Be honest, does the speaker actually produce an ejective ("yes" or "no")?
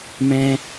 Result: no